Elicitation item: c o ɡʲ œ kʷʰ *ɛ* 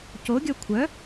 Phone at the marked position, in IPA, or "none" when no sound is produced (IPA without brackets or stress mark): œ